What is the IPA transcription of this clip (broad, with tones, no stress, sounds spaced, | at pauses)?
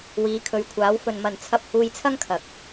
w iː˨˧ kʰ ɵ˨˧ ɥ kʷʰ aː˨˥ w f ɵ˨ n m ɐ˨ n t͡sʰ ɐ˧ p̚ h uː˧ j t͡sʰ ɐ˥ ŋ kʰ ɐ˨ k̚